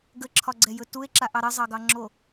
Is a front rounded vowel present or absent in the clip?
absent